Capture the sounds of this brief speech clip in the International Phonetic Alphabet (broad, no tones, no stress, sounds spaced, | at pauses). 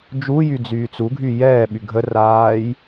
d͡ʒ u j y d͡z yː t͡s u ɡʱ y j ɛː ɓ y ɡʱ ə r aː j